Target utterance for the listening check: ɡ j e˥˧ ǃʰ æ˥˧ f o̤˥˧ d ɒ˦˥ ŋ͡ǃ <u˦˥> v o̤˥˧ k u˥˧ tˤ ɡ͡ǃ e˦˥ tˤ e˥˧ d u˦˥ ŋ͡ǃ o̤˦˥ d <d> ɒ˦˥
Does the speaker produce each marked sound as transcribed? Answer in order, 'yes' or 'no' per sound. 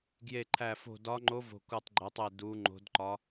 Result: no, no

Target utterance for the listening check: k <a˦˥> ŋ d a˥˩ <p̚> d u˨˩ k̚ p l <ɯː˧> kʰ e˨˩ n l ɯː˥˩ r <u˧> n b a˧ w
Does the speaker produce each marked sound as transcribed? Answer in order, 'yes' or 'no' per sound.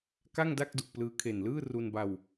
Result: no, no, yes, yes

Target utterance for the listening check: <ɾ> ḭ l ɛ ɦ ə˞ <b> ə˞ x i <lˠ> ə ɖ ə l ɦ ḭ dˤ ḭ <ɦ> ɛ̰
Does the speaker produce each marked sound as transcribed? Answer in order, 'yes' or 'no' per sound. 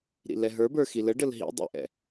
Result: yes, yes, no, no

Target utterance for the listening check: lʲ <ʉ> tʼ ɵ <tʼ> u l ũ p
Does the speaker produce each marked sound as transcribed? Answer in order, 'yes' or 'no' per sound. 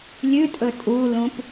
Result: yes, yes

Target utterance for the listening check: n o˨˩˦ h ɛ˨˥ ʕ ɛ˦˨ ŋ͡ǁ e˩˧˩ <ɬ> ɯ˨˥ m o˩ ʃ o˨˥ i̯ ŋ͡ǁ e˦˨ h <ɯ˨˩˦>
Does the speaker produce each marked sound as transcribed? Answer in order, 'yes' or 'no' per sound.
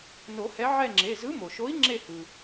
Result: no, no

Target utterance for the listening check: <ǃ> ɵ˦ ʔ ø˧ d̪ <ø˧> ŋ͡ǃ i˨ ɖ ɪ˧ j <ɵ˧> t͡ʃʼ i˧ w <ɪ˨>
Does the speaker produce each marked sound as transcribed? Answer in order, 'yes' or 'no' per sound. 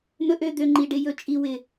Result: no, yes, yes, yes

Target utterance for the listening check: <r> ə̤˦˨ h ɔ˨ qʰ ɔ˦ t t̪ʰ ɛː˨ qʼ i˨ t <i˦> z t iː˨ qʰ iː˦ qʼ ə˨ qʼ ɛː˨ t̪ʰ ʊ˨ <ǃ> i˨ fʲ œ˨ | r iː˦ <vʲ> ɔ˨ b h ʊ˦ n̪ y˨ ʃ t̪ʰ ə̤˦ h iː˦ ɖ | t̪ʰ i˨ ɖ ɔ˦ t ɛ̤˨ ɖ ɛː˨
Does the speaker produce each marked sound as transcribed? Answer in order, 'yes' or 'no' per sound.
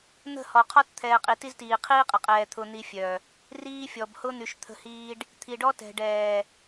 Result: no, yes, no, no

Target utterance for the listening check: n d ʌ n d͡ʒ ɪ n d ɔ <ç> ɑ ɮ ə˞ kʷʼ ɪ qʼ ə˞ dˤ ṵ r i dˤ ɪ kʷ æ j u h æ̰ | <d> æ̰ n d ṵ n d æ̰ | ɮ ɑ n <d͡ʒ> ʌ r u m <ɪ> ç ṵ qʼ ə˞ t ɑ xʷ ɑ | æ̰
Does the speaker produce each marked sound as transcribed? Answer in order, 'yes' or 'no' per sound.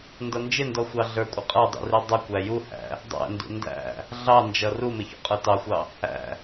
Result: no, no, yes, yes

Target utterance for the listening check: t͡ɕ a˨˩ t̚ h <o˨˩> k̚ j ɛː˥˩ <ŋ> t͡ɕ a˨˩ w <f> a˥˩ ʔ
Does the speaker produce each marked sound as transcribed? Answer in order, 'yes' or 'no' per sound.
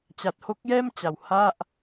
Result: no, no, no

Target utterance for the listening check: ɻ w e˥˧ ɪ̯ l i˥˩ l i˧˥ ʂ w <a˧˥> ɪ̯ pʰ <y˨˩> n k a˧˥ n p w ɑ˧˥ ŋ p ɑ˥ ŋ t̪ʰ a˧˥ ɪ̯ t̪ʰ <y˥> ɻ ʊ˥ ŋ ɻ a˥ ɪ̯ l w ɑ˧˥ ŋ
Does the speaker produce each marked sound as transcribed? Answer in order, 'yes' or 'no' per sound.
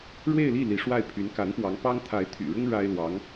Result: no, no, no

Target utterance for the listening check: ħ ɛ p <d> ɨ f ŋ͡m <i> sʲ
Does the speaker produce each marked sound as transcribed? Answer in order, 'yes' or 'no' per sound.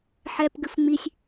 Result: no, yes

